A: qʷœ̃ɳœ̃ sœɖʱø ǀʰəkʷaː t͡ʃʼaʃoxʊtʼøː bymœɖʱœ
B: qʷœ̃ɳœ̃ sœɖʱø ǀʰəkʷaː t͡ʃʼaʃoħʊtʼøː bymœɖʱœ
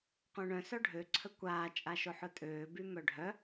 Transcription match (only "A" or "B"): B